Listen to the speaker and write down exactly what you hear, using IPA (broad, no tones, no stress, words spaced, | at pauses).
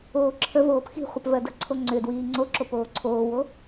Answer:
oːǁʰəvoːp xi̤χʷəp vɜdə̤ǀʰo ŋ͡ǀʏdwiː ŋ͡ǀoǁo poːǀʰoːwo